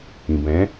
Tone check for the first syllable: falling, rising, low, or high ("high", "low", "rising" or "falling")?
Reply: low